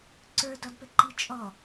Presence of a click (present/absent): present